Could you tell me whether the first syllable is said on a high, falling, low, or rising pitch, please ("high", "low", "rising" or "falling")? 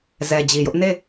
low